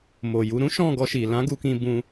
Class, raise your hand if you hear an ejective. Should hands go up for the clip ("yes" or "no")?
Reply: no